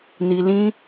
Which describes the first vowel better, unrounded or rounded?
unrounded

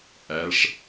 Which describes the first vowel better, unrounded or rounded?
unrounded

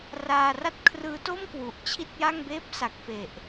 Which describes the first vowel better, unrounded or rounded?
unrounded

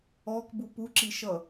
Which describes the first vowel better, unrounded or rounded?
rounded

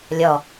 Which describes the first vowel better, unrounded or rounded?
rounded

